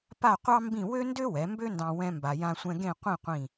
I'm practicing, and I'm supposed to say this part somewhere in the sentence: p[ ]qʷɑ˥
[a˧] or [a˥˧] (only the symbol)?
a˥˧